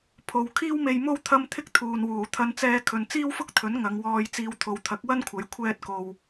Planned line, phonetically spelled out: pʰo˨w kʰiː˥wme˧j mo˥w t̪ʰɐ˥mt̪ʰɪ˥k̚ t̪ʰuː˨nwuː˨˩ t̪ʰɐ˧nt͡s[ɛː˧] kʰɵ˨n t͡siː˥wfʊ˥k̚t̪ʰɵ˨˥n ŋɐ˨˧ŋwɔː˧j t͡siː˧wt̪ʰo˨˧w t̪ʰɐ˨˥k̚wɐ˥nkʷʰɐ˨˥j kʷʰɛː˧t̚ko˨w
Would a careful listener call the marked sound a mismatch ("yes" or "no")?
no